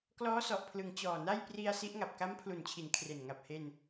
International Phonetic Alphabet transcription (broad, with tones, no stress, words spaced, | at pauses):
klɔː˦˥sɔ˨˩ʔpʰlɯ˩˦ŋ t͡ɕɔː˨˩na˥˩j pri˧a̯ si˦˥ʔŋa˨˩p̚ ka˦˥mpʰlu˨˩nt͡ɕʰi˩˦n kʰre˨˩n ŋa˨˩p̚he˧n